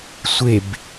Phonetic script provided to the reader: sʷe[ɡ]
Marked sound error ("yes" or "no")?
yes